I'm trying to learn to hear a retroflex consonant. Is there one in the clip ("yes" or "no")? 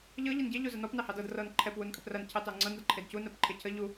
no